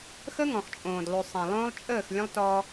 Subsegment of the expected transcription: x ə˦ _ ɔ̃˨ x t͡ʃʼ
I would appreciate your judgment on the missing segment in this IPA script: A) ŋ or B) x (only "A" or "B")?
A